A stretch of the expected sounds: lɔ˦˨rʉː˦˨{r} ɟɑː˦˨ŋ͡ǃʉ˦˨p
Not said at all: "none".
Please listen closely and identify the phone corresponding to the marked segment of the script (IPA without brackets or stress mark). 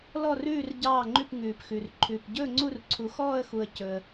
r